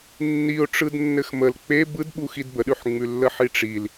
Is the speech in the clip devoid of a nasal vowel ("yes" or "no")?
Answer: yes